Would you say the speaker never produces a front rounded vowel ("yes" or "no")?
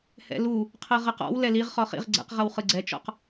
yes